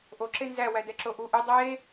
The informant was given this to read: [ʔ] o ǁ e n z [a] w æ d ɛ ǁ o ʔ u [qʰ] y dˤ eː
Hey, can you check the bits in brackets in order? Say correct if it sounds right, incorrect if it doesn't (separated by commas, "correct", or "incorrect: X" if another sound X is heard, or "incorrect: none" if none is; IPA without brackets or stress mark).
correct, incorrect: æ, incorrect: ʔ